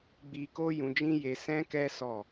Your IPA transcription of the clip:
ɡ͡b i˧ k o˦ j ũ˧ d͡ʒ ĩ˦ j e˧ s ɛ̃˦ k ɛ˦ s ɔ˦˨

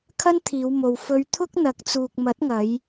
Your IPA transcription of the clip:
kʰ ɐ˥ n t̪ʰ iː˨˧ w m o˨ w f ɵ˧ ɥ t̪ʰ ʊ˥ k̚ n̪ ɐ˨˥ k̚ t͡s uː˨ k̚ m ɐ˨˥ t̚ ŋ ɐ˨˧ j

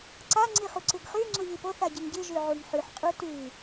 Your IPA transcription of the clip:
ǀ a ŋ͡ǀ i χ u ǀ ɨ ɡ χ ʉ ŋ͡ǀ u ʎ i p o θ a ɟ ɨ ŋ ɟ ɨ ʒ ʉ ʕ u ŋ ħ ʉ ħ qʼ u t ʉ

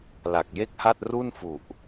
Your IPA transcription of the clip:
l a˨˩ k̚ j e˥˩ k̚ h a˥˩ t̚ r u˥˩ n f u˨˩ ʔ

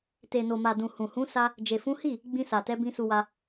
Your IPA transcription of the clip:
t e˨ n o˨ m a˨ d ũ˨ h ũ˨ h ũ˨˦ s a˦ | d͡ʒ e˨ f ũ˨˦ h i˦˨ | ɡ͡b ĩ˧ s a˨ t ɛ˨˦ b ĩ˧ s u˧ w a˧

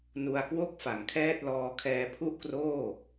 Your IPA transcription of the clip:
n u˧ a̯ k w o˥˩ k̚ f a˩˦ ŋ kʰ ɛː˥˩ t̚ l ɔː˧ kʰ ɛː˧ pʰ u˥˩ ʔ k r oː˥˩

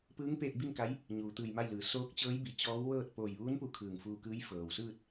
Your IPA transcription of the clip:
p ɯː˧˥ ŋ p eː˧ t̚ b i˥˨ n k a˧˥ j | ɲ uː˩˧ t̪ ɯː˧˩ j m a˥˨ j l ɯː˩˧ s oː˧˥ k̚ t͡ɕ ɤː˧˥ j b i˩ t͡ɕ ɔː˧˥ w ʋ ɤː˥˨ t̚ p oː˧˩ j ʋ uː˧˥ n p u˧˩ kʰ ɯː˧˩ ŋ f uː˧ k ɯː˧˥ j f ɤː˩ w s ɯː˥˨ t̚

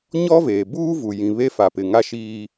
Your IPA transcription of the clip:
ɲ ɔ˦ v eː˨ b uː˦ v u˨ j ĩ˨ β e˦˨ f a˨ p ɪ˨ ŋ a˦ ʃ iː˦

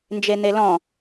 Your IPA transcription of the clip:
n d͡ʒ e n̪ e l ɔ̃

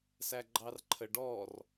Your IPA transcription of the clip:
s æ ɡ͡ǃ ɑ r ǃʰ ə ɖ ɔ r

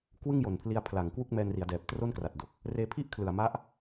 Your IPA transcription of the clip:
k w ɯ˥˩ ŋ j o˨˩ n pʰ l i˧ a̯ pʰ l a˨˩ ŋ k w u˥˩ k̚ m ɛː˧ n r i˩˦ a̯ d ɛː˨˩ p̚ t r o˥˩ n k r a˨˩ t̚ d o˨˩ k̚ | r eː˧ pʰ i˥˩ ʔ kʰ l ɯ˨˩ a̯ m a˦˥ ʔ

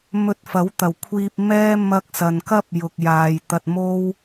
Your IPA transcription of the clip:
m ɵ˧ t̚ f ɐ˨˥ w t̪ ɐ˨˩ w kʷʰ iː˧ p̚ m ɛː˥ m ɐ˥ k̚ s ɐ˨ n k ɐ˥ p̚ j ʊ˧ k̚ j aː˧ j t̪ ɐ˧ t̚ m o˥ w

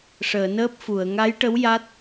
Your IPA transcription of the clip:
ʂ əː˨˩˨ n əː˦˥ p̚ f u˨˩˨ ə̯ ŋ a˧˥ j ʈ ə˧˥ w j a˦˥ t̚

